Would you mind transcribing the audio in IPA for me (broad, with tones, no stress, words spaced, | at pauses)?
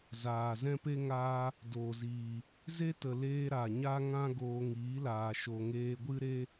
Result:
zaː˨ zɛ̃˦pe˦ ŋaː˧ | doː˨ziː˨ | ze˦tə˨leː˧ ɾa˨ɲa˦ŋã˦ ɡoː˧ŋiː˨˦laː˨ ʃo˨ŋeː˧ɡʷɨ˦ɾe˦